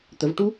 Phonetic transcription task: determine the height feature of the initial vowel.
mid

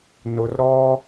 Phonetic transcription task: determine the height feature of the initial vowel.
high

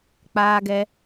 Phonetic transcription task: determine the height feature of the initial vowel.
low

